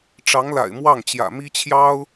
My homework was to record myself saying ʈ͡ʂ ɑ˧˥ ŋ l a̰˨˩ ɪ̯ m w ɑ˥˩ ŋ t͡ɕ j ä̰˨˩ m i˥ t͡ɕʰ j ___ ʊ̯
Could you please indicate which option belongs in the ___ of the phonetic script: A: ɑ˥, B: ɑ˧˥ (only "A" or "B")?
A